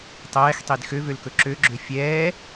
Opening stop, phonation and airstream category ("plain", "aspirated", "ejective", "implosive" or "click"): plain